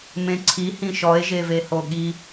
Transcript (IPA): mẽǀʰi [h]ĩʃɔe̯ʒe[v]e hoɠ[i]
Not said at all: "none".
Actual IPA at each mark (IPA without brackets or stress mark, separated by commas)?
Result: h, v, i